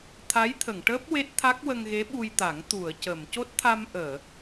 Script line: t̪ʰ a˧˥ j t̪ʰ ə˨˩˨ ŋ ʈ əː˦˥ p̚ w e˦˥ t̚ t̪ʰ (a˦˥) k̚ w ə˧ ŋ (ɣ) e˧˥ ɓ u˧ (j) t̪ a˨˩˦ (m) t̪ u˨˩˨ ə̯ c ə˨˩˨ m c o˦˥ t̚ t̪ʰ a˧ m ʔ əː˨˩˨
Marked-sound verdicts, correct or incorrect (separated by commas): correct, correct, correct, incorrect